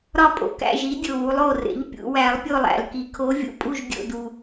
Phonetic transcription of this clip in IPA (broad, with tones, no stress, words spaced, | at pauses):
ɾɒ˥˨pʼo̰˨˩kæ̰˥˨ʒi˨˥ dʲo˨˩wu˩˧lˠ o˨˩rḛ˩˧ʎ pʲṵ˩˧wæ˨˥lˠ pʲo˥˨lˠæ̰˨˩lki˩˧ kʰo˨˥vʲṵ˨˩pʼu˥˨ʒ dʲo̰˥˨du˨˩